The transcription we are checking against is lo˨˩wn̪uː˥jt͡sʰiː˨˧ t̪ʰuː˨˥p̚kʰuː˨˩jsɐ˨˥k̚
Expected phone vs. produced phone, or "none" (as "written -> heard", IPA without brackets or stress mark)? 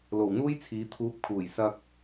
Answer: ɐ˨˥ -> ɐ˧